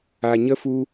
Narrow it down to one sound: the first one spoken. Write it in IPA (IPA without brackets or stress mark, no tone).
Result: a